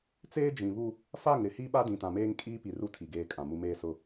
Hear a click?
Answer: no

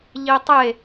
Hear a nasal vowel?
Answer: no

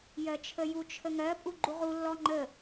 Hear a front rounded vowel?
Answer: no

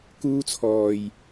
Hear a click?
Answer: no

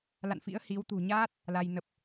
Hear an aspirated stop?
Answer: no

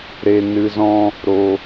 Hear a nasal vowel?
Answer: yes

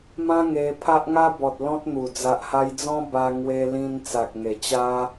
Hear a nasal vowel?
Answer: yes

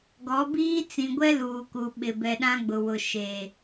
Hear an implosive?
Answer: yes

